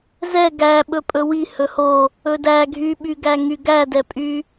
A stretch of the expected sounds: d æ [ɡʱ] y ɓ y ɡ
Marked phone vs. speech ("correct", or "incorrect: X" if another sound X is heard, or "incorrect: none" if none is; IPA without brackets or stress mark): correct